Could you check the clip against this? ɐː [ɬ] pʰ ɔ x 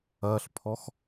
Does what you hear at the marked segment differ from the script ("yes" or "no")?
no